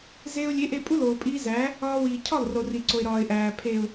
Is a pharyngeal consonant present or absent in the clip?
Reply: absent